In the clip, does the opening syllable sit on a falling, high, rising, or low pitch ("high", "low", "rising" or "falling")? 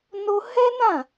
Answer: high